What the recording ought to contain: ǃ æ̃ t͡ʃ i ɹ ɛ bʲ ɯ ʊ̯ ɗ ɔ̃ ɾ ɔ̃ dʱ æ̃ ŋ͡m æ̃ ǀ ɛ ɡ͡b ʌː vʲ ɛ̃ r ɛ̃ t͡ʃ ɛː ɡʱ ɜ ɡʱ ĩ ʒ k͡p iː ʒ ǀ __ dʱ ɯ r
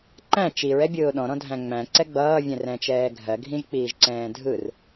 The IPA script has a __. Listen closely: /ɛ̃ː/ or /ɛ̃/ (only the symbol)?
ɛ̃ː